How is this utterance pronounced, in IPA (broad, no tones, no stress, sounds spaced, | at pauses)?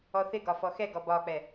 ɔ θ ɪ ɡ ɒ f ɔ x ɛ ɡ ɔ b ɒ k͡p ɛ